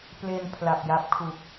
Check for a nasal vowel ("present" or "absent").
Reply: absent